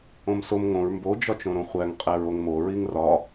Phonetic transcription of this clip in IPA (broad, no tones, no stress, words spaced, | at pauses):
õmsom ŋõɹ mbo d͡ʒɒt͡ʃõɾõχʷæŋ qʼæɹoŋmo ɹiŋrɒ